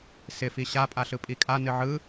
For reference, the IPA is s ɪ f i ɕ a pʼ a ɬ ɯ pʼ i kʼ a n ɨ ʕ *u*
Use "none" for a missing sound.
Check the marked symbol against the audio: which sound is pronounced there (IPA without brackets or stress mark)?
ɯ